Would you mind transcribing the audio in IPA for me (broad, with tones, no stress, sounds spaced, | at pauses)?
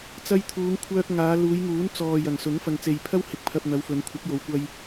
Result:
t͡s ɐ˧ j t̪ʰ uː˨˧ ŋ kʷʰ œː˧ k̚ ŋ aː˨˧ l uː˨˧ j ŋ uː˨˥ n t͡s ɔː˨ j ɐ˨˩ ŋ s ʊ˨˥ ŋ f ɐ˨ ŋ t͡s e˨ j pʰ ɐ˥ w h ɪ˨ k̚ pʰ ɐ˧ p̚ n̪ ɐ˨˧ w f ɵ˨˧ n kʷʰ ɐ˨˥ k̚ j o˨˧ w kʷ ɐ˧ j